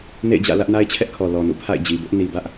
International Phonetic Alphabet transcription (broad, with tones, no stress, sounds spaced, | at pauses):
n ḛ˦˨ ɪ̯ d͡ʑ ä̰˦˨ l ä˦ ʔ n a˦ ɪ̯ t͡ɕʰ ɛ˦ ʔ kʰ ɔ˨ l ɔ˨ n ṵ˦˨ pʰ a̰˦˨ ɪ̯ d͡ʑ i˨ b ʊ˦ ʔ n i˨ b ä˦ ʔ